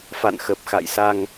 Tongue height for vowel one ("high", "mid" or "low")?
low